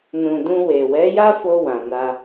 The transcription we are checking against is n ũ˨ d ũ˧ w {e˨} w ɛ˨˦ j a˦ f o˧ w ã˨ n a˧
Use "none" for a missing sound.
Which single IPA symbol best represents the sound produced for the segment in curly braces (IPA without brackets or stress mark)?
e˨